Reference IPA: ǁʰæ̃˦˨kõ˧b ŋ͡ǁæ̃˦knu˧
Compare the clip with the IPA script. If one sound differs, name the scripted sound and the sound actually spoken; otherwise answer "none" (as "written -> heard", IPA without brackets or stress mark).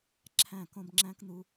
none